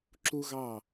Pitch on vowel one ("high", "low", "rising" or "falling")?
high